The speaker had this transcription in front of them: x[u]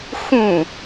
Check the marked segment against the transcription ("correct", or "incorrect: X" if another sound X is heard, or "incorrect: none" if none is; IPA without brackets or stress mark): incorrect: ũ